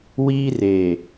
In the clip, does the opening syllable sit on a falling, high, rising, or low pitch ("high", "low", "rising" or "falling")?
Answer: high